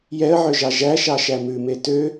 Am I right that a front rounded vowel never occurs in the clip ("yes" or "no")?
no